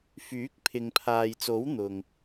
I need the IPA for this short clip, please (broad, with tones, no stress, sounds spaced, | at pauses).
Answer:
f yː˨˥ k̚ pʰ ɪ˨ ŋ pʰ aː˨ j t͡s o˨˥ w n̪ ʊ˨ ŋ